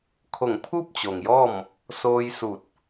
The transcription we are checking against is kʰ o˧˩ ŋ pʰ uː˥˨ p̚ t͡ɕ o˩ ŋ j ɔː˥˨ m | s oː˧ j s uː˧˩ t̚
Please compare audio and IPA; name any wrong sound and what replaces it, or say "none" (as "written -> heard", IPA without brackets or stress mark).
none